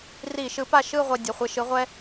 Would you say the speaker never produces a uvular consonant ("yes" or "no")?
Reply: no